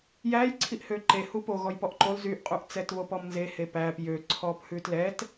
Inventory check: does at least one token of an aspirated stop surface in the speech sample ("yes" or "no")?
yes